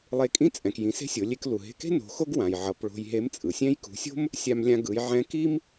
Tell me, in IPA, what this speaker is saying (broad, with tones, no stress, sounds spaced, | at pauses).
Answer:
lˠ e˧˥ kʼ ĩ˥ t͡sʼ ɛ̃˩ k j ĩ˩˧ s e̤˥ sʲ o˩˧ lʲ e˧ k l u˩ ɦ e̤˧ k e̤˥ n o̤˩˧ x o˥ ɡ w ã˩ j ʕ ʌ˩˧ p ɭ o̤˧ j ɦ e˧˥ m t͡sʼ ɯ˩ sʲ ɛ̃˥ j k ṳ˩˧ sʲ o̤˥ m | sʲ a˧ m lʲ ã˧ ɡ ɯ˩˧ j ʕ ɛ̃˧˥ k i˥ m